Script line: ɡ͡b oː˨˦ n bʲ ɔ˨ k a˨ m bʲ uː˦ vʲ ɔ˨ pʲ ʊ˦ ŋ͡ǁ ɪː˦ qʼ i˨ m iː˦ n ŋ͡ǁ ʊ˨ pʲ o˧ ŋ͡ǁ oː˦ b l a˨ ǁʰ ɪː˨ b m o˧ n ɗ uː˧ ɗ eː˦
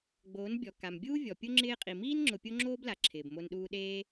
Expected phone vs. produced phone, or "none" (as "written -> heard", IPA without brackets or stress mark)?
none